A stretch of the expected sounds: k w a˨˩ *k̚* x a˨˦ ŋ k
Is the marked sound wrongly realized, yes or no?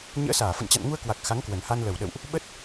no